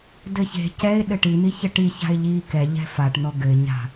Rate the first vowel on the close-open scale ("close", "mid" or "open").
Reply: mid